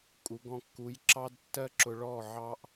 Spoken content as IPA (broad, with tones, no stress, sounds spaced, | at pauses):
kʼ u˨˦ ɡ ɔ̃˧ kː u˨˦ j ǁ ɑ˦ d tː ɜ˦ ǁ ʊ˧ ɭ ɔ˦˨ ʕ ɑ˦ ʔ